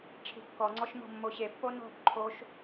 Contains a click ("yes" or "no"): yes